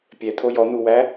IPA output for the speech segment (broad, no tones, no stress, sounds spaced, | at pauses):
pʲ ɛ t̪ʰ o j ɔ n̪ u w æ